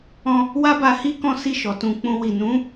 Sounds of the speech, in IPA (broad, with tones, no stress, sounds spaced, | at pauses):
ɔ̃˧ | w a˦ b a˧ h i˦ k ɔ̃˦ s i˦˨ ʃ ɔ˨ t ũ˧ k͡p ũ˧ w i˨ n ũ˨˦